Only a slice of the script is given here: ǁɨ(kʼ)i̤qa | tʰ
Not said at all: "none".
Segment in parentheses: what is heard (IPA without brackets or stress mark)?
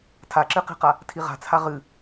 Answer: q